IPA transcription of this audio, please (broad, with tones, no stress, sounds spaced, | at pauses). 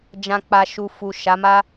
d͡ʒ ã˨ k͡p a˨ ʃ u˨ f u˨ ʃ a˨˦ m a˦